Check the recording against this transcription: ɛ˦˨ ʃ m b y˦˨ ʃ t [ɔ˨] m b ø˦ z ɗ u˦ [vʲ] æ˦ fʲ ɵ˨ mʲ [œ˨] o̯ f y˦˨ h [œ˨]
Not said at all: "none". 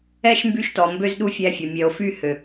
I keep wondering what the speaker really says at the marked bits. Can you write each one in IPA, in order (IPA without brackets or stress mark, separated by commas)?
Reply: ɔ˨, fʲ, œ˨, ø˨